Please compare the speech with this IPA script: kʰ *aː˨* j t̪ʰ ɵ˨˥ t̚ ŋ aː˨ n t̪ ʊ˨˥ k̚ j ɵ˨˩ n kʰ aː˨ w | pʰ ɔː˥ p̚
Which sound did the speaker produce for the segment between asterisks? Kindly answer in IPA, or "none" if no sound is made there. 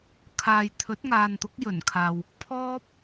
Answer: aː˨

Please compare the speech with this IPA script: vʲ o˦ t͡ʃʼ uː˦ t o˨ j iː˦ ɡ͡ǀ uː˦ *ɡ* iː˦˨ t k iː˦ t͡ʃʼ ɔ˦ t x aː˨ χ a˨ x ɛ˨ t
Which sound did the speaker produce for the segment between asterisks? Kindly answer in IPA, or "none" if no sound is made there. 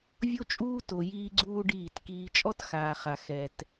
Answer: ɖ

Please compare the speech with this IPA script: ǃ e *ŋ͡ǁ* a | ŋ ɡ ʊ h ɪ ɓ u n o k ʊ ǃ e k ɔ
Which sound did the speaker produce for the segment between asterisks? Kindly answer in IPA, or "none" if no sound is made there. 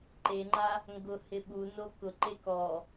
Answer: ŋ͡ǃ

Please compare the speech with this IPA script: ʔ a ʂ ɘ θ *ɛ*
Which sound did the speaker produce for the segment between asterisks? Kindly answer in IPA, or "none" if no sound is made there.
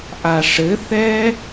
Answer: ɛ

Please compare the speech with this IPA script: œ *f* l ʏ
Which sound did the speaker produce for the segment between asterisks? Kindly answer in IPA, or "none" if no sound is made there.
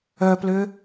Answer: p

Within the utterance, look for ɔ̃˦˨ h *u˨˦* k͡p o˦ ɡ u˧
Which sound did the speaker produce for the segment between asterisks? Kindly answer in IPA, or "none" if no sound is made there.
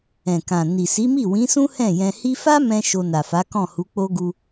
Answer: u˨˦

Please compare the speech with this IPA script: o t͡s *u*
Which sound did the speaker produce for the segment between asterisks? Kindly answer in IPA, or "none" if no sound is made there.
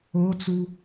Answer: u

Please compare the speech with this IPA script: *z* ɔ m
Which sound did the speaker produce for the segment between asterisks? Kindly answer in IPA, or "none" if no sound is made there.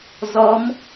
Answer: z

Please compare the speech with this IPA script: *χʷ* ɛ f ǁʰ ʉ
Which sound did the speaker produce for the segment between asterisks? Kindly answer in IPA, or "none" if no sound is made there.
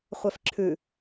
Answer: χʷ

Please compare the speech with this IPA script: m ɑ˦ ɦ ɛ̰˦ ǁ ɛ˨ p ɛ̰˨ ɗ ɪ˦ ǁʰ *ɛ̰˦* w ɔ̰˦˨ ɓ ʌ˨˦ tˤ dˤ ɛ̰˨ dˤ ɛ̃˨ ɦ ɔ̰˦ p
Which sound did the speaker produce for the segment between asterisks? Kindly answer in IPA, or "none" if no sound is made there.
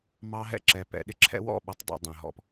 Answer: ɛ̰˦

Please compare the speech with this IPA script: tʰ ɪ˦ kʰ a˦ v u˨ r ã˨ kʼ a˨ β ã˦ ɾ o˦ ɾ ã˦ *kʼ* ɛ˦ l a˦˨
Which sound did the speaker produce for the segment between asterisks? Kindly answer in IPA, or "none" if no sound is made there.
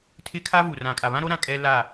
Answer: kʼ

